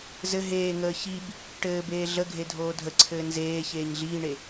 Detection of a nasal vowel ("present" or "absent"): absent